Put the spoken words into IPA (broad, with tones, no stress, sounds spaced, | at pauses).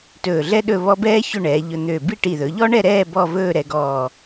t ɵː˧˩ ɮ ɛ˥ ɗ ɵ˥˧ β ɔ˥ b ɛː˥ ç ɵ˥˧ ɳ ɛː˩˧ ʎ ɵ˧ n̪ ø˧˩ b i˥˧ ʈ i˧˩ ð ɵ˩˧ ʎ ɔ˥ ɳ ɛ˥˧ ɾ ɛː˥˧ b ɔ˥˧ v ɵː˥˧ ɾ ɛ˧ ɡ ɔː˧˩